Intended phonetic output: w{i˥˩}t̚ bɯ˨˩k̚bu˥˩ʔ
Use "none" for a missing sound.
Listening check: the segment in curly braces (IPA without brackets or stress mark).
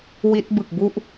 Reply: i˦˥